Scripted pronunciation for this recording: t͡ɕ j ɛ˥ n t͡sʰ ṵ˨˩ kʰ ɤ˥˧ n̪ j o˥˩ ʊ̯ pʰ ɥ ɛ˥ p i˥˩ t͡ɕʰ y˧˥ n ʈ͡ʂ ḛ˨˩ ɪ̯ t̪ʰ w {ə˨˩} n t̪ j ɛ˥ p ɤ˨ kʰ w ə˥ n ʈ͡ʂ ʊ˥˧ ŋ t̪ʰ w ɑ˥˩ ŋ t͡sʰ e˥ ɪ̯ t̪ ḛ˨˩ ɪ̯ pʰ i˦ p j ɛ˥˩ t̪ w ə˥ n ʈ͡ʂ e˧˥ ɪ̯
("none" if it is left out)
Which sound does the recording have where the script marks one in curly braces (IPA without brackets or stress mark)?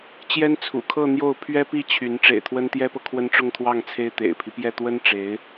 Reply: ə˥